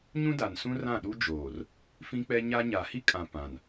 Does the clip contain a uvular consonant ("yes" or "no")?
no